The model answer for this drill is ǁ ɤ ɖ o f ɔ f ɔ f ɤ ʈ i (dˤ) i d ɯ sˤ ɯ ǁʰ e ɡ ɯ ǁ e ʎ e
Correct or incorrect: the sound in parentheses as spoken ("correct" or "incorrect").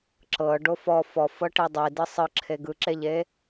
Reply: correct